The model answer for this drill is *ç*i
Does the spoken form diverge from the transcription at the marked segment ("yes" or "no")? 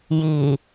yes